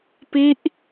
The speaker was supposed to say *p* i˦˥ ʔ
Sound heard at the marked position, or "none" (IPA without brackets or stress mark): p